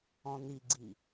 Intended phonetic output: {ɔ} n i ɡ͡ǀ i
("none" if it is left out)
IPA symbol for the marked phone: ɔ̃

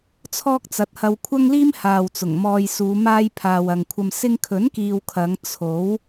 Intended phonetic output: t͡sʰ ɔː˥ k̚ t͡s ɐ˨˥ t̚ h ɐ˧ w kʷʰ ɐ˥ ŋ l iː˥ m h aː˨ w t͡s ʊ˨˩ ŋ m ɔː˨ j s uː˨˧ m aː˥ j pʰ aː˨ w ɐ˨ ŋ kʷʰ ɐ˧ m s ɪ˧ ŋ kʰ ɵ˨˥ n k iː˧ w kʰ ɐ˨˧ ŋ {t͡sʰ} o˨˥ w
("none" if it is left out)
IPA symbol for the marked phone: t͡sʰ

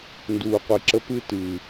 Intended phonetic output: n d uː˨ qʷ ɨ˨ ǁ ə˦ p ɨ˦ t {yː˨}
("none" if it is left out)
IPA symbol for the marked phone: ɨː˨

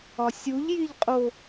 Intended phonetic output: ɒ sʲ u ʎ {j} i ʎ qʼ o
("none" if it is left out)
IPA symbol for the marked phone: j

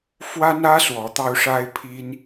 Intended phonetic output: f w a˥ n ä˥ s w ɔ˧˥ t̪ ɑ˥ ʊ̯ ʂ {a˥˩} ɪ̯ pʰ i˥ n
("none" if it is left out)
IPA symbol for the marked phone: a˥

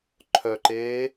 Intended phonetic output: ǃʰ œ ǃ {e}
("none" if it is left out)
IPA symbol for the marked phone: eː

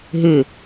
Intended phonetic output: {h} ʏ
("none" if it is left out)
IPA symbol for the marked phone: ɦ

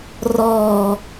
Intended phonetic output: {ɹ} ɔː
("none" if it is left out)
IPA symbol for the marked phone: r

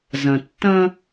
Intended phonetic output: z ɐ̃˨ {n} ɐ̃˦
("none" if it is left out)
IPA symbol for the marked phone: tː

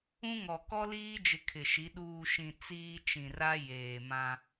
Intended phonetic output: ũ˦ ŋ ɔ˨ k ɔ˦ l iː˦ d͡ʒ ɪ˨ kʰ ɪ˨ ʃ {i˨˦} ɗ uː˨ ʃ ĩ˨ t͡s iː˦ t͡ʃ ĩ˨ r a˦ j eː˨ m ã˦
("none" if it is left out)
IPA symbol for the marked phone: i˨˦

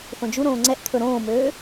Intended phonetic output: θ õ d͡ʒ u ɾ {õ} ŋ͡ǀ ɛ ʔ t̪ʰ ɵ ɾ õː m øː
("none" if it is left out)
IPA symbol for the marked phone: õː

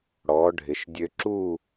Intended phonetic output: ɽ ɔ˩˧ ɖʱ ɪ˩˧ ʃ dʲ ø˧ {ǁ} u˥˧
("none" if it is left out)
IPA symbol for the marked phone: ǁ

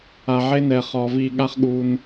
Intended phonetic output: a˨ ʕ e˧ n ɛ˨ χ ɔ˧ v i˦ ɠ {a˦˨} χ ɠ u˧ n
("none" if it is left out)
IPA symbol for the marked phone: a˦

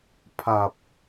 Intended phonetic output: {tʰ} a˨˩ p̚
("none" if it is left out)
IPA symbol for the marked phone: pʰ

